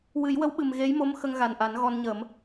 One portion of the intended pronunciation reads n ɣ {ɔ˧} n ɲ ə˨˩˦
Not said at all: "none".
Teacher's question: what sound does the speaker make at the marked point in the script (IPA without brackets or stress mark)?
ɔ˧